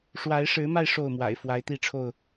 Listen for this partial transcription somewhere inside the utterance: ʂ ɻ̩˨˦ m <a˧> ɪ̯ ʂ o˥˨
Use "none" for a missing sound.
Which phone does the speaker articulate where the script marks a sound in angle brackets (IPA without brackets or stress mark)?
a˧